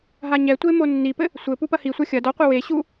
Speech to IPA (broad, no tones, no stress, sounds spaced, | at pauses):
ɦ a ɲ ɛ tʷ e m o nː i p ɘ | sʷ ɘ p u p ɐ h i sʷ a xʲ ɐ d ɔ qʷ i w e ɕ u